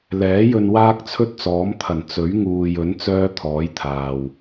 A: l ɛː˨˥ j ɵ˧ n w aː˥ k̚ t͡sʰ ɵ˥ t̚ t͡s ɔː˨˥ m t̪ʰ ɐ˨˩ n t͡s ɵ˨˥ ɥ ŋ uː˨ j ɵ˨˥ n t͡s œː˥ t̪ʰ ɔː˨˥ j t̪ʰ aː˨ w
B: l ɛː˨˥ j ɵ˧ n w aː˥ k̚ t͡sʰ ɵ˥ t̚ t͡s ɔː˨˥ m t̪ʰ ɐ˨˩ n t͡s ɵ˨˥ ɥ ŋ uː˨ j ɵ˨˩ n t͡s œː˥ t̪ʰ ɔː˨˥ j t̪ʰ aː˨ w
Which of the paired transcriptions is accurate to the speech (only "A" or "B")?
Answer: A